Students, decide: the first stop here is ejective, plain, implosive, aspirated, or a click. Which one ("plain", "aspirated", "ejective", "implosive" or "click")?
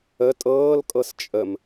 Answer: ejective